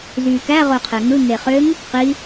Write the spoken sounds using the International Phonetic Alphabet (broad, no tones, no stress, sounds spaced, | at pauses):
z yː k æ ʁ o qʰ e ŋ ɯ ŋ e χ ø ŋ | q i